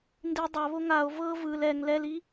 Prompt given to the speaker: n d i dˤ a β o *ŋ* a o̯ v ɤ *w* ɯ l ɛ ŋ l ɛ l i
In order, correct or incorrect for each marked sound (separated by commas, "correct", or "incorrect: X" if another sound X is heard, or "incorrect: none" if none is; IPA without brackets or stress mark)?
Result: correct, incorrect: v